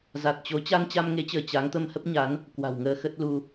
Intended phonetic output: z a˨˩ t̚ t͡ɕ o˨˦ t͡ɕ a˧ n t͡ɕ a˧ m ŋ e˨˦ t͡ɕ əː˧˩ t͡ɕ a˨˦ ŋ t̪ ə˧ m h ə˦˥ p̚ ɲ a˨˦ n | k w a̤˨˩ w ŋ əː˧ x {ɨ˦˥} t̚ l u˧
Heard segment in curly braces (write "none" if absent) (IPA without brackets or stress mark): ə˦˥